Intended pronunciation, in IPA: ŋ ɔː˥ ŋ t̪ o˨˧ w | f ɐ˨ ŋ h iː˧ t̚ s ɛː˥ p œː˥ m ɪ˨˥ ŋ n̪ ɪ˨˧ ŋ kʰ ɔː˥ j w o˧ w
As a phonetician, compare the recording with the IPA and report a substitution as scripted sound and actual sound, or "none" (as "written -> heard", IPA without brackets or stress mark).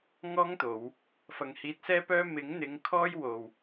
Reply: none